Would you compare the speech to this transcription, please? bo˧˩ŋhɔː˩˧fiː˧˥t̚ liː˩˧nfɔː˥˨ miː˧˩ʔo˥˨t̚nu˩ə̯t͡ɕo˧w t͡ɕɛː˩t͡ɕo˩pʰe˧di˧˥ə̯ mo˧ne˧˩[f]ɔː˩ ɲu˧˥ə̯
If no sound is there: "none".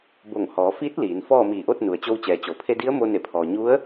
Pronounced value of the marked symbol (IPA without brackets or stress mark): pʰ